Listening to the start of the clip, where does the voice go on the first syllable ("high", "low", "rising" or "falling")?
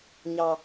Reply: high